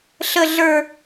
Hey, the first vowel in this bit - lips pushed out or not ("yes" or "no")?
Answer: no